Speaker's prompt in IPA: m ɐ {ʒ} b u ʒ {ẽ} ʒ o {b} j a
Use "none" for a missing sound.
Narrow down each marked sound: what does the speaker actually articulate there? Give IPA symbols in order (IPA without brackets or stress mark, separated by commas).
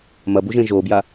none, ẽ, b